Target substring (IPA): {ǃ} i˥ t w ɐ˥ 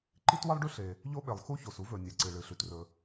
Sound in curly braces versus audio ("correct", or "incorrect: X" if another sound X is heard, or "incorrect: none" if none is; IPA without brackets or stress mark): correct